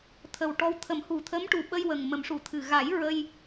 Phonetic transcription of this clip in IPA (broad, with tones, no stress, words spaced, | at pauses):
t̪ʰə˨˩wʈɔ˧w t̪ʰə˨˩˦mhu˨˩t̪ʰə˧˥m ʈu˨˩ɓə˧j wə˨˩ŋmə˨˩˦mʂu˨˩˨t̪ʰɨ˨˩ ɣa˨˩˦j ɹə˧j